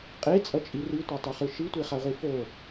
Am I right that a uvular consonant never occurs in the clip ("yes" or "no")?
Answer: no